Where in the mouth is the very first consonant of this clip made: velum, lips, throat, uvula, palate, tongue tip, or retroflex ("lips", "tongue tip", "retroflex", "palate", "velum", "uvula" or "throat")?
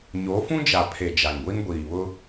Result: palate